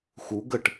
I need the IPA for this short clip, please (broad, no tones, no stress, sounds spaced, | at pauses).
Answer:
x u ɡ ə ʈ